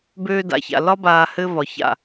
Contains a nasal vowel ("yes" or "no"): no